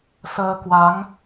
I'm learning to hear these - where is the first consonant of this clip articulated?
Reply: tongue tip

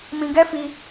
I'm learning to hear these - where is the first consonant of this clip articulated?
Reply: lips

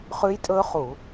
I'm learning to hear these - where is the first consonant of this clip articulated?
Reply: uvula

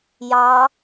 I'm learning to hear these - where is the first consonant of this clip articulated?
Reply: palate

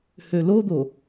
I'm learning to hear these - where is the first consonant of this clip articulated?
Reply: throat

